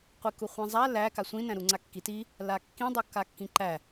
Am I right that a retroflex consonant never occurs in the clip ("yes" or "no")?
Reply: yes